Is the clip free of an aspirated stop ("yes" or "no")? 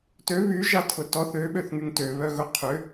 no